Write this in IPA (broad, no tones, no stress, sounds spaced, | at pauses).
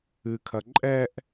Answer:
ɨ kʰ ɐ ǃʼ ɛ ʔ